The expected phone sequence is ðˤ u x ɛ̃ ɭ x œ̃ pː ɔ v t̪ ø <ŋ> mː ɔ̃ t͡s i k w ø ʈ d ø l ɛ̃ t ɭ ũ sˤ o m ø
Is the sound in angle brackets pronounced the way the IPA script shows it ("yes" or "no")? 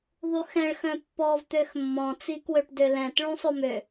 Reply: no